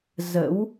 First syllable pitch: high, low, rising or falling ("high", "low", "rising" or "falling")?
rising